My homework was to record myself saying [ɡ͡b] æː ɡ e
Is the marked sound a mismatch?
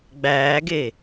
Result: no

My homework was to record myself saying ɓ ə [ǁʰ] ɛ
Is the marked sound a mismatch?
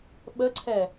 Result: yes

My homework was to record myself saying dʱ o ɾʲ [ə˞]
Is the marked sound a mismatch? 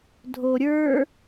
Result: no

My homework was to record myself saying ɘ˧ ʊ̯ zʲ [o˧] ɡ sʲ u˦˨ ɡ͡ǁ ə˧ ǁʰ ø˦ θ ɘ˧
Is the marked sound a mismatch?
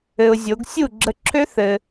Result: yes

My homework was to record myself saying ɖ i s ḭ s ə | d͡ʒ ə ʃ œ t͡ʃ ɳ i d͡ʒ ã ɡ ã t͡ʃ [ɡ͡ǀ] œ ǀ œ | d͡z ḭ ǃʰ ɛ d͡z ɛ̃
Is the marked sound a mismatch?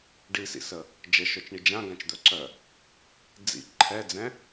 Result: yes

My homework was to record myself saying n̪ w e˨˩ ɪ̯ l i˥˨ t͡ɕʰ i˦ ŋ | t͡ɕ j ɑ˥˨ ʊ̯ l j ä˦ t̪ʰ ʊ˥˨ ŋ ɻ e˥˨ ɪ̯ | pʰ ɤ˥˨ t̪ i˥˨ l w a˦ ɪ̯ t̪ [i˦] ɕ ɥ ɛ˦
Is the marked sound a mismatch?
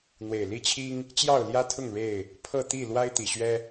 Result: yes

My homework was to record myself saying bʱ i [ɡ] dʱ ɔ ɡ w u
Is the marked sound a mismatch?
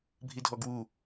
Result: yes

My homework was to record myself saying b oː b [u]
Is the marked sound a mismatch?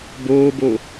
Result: yes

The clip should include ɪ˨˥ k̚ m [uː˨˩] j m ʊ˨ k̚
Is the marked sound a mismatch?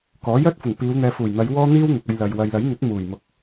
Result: no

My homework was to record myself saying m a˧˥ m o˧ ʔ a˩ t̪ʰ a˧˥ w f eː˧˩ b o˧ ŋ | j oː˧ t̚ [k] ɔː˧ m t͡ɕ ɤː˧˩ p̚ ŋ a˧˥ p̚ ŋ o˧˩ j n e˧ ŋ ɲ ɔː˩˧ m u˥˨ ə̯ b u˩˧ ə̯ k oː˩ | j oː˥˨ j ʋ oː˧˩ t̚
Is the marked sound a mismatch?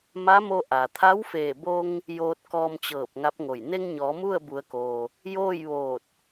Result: no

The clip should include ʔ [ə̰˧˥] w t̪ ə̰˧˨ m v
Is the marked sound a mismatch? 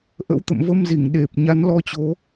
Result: no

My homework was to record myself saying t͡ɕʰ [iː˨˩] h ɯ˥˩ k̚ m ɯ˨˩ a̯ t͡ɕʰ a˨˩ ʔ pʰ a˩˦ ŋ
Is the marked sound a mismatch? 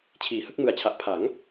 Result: yes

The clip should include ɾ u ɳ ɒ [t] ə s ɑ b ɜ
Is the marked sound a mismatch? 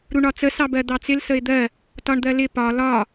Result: yes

